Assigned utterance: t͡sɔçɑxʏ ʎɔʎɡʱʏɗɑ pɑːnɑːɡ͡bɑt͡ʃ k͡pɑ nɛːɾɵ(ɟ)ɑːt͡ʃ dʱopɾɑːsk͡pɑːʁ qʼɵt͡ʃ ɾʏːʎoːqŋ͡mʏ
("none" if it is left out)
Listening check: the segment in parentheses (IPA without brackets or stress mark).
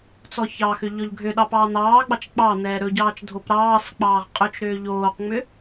ɟ